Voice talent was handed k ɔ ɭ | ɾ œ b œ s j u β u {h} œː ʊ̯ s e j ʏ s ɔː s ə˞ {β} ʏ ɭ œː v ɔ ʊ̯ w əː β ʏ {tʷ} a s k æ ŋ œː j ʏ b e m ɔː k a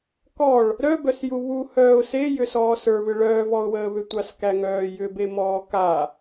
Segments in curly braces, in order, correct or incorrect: correct, correct, correct

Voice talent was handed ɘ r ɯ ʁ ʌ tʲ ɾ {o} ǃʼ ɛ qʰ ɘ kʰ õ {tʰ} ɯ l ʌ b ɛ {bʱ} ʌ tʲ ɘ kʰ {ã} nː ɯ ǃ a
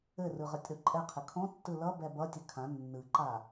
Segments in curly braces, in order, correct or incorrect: correct, incorrect, incorrect, correct

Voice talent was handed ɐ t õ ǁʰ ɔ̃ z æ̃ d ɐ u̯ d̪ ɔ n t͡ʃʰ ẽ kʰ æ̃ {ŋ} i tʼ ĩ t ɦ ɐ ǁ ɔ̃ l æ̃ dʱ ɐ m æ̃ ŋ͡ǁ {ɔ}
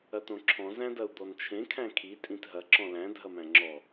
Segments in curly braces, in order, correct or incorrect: incorrect, correct

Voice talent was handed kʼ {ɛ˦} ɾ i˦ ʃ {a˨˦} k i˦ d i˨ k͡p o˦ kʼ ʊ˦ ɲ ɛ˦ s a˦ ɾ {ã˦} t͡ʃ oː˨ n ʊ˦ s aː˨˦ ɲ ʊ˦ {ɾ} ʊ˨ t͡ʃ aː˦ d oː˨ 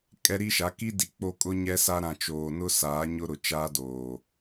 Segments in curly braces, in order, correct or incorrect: correct, correct, incorrect, correct

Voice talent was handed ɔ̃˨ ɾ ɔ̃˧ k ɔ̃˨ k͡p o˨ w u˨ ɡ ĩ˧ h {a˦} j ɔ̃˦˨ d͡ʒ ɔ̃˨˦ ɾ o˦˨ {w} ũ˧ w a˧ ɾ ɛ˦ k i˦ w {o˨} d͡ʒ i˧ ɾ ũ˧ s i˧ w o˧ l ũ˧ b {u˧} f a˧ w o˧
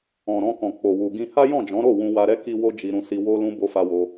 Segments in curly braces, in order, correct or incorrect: correct, correct, incorrect, incorrect

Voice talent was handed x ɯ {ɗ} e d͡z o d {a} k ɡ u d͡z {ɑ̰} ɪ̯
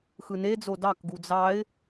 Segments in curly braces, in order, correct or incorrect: incorrect, incorrect, incorrect

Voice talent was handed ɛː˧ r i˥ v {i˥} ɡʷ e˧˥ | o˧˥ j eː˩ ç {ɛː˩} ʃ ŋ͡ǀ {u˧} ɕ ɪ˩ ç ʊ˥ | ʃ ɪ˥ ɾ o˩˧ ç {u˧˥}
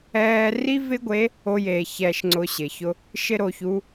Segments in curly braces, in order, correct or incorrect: incorrect, incorrect, incorrect, correct

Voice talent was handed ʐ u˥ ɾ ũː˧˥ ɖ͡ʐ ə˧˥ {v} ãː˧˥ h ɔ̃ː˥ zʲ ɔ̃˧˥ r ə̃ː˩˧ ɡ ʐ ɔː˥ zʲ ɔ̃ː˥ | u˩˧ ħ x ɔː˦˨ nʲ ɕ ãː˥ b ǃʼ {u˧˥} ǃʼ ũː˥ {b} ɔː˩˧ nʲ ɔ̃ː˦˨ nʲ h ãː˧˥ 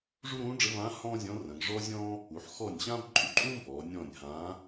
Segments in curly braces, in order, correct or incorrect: correct, correct, correct

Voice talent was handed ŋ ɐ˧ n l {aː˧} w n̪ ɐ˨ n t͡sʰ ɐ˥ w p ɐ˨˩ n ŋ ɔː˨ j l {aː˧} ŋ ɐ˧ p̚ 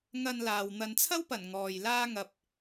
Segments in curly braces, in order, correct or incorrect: incorrect, incorrect

